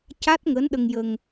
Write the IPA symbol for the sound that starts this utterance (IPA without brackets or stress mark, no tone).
c